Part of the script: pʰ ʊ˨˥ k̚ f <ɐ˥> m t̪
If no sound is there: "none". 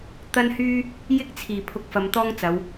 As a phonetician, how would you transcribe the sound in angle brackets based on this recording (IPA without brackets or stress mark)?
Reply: ɐ˧